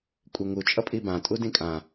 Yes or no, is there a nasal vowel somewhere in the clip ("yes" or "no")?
yes